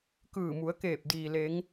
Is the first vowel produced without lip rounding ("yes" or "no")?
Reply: yes